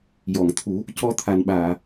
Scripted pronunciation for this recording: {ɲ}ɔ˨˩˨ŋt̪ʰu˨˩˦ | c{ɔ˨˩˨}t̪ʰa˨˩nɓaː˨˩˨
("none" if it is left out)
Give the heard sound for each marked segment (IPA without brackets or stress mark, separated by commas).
j, ɔ˧